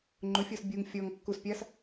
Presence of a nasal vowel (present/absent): absent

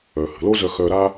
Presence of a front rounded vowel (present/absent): present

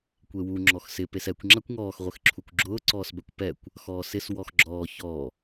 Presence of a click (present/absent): present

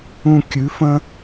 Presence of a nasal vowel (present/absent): present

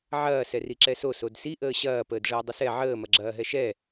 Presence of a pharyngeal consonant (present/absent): present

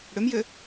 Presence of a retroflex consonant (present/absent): present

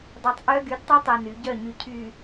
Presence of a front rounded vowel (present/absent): present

